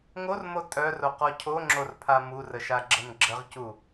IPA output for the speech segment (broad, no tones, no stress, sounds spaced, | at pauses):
ŋ o r m o tʼ œ r o q ɔ cʰ o ŋ͡ǁ o r pʰ a m u r ə ʃ a ɡ͡ǁ ə n ɡ͡ǁ ə ʁ c u